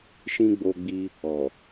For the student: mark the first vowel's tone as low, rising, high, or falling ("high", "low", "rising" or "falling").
high